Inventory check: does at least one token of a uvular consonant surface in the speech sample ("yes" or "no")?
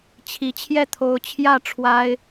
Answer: no